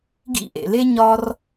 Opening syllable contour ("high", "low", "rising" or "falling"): high